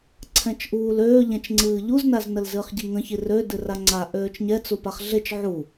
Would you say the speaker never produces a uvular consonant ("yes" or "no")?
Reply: no